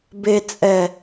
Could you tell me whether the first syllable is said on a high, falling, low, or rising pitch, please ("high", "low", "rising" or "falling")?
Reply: low